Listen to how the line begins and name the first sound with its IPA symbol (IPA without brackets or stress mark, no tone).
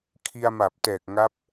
kʰ